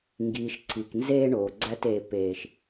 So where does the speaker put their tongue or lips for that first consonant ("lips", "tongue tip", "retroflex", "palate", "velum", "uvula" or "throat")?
velum